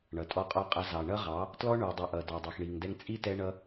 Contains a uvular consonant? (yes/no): yes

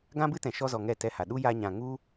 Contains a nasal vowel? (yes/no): yes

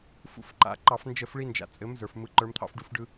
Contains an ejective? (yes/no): yes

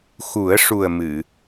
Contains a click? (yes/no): no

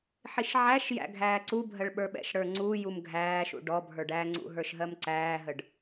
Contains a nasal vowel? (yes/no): no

